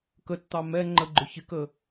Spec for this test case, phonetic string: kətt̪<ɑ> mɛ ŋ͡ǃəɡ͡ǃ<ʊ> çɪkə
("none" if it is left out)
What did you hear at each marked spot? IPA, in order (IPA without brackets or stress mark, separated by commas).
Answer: ɑ, ʊ